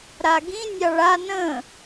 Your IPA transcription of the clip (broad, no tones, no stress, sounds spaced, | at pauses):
ɾ a ɡ ĩ nʲ ɑ ɭ a n ə̃